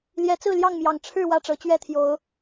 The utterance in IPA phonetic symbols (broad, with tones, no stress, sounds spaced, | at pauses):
l j ɛ˨˦ t͡s ɹ̩˥˨ l j ɑ˥˨ ŋ m j ɑ˨˩ ŋ ʈ͡ʂʰ ɻ̩˥˨ w ä˥˨ ʈ͡ʂ ɤ˨˦ t͡ɕ ɥ ɛ˥˨ t̪ʰ j o˨˦ ʊ̯